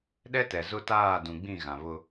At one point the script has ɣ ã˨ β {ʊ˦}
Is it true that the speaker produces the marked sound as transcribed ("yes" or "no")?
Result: yes